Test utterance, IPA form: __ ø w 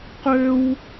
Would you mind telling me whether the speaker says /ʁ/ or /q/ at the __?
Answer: q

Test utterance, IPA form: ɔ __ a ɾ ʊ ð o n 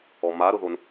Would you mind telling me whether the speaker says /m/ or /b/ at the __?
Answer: m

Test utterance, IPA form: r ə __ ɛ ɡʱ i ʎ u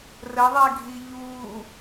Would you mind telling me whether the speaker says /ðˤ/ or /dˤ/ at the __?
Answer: ðˤ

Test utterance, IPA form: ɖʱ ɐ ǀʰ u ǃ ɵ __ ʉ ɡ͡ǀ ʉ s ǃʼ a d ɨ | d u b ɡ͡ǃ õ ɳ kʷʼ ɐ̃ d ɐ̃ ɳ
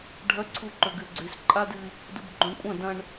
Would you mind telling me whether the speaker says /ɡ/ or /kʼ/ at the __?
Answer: ɡ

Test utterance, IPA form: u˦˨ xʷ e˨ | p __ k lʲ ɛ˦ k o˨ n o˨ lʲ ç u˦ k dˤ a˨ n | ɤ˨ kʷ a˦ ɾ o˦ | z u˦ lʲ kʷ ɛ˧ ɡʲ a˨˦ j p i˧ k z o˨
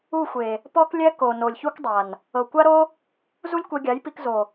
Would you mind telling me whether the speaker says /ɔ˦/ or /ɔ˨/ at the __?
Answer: ɔ˦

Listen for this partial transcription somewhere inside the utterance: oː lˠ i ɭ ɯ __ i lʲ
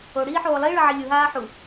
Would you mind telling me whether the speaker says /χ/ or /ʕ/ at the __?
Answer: ʕ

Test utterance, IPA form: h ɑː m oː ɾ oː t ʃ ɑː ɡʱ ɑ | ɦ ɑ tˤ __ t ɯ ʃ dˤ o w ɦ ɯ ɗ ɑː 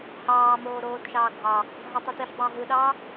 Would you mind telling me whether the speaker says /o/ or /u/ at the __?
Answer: u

